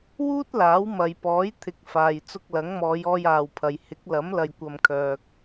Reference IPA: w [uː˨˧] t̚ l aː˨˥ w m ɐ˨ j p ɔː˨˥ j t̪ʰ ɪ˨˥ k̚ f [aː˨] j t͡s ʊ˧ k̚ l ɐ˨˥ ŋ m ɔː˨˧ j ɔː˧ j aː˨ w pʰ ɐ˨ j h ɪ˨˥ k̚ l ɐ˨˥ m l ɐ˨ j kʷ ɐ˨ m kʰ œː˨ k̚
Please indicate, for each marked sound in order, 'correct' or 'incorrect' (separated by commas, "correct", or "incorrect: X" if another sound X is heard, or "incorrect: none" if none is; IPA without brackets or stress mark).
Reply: incorrect: uː˥, correct